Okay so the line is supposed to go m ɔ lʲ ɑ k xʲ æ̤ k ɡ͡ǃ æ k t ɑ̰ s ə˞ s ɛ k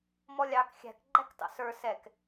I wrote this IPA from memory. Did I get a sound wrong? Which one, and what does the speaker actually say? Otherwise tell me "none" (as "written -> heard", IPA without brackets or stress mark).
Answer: none